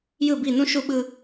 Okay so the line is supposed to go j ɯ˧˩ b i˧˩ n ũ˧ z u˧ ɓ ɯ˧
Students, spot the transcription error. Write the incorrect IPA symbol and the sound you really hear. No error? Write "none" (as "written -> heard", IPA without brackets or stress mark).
z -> ʃ